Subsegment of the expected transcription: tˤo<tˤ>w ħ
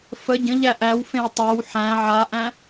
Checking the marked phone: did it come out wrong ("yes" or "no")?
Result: yes